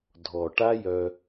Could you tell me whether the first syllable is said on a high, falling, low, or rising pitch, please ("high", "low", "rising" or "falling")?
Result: low